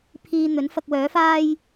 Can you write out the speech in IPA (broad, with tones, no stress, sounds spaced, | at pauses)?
pʰ iː˧ n̪ ɵ˨˥ n f ɐ˧ k̚ w œː˨˥ f aː˥ j